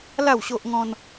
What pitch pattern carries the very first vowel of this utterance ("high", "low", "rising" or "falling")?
falling